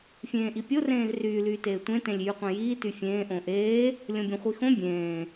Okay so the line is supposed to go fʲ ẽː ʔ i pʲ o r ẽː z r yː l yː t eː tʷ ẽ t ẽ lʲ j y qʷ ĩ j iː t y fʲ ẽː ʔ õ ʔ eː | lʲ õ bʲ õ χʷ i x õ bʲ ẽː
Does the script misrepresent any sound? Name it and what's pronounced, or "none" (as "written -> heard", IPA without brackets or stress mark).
none